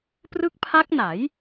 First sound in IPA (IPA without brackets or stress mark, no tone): p